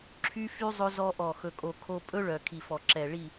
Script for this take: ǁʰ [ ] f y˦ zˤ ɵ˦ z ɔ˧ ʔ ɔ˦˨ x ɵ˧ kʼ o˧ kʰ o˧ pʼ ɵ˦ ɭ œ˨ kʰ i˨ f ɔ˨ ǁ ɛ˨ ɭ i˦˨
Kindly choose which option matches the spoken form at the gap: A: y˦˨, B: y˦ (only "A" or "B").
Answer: B